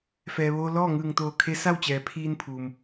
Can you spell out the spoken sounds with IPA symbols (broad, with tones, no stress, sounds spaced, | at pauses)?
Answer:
f ɛː˩ ʋ oː˧ l ɔː˥˨ ŋ ɯː˧˩ ŋ t̪ oː˧˩ kʰ e˧˥ s a˥˨ w t͡ɕ ɛː˩˧ pʰ iː˧ n pʰ uː˩ m